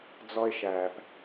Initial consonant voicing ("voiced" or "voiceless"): voiced